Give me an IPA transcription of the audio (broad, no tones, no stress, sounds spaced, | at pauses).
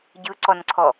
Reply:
ɟ ɯ ǀ ɔ n ǀʰ ɔ